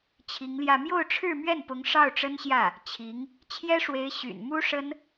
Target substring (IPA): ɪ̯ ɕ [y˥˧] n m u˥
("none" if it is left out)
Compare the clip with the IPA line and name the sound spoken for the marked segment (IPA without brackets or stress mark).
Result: y̰˨˩